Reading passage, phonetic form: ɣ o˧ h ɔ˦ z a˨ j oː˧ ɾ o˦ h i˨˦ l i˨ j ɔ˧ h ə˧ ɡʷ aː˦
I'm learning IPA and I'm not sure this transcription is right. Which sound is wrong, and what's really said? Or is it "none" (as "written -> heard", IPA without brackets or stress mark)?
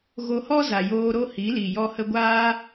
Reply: none